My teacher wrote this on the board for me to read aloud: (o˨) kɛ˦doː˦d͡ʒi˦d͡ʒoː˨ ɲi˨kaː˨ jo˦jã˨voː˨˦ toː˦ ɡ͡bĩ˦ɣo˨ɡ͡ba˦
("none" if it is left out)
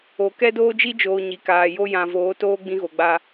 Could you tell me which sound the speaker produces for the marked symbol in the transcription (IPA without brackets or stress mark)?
o˨